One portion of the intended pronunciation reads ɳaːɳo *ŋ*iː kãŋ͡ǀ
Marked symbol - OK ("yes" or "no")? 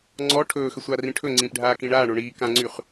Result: no